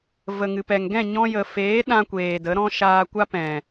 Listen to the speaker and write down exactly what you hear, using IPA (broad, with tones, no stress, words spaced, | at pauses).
və˨ŋɨ˨pɛ˨ŋ ɡɛ̃˦˨ɲɔ̃˧jə˨ feː˨˦ɗã˧ kʷeː˨də˨˦ ɾɔ̃˦ ʃaː˧kʷa˦ pɛ̃˨